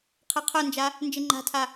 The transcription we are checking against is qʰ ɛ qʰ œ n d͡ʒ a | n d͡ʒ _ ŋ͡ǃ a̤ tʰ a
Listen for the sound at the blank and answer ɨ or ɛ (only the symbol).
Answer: ɨ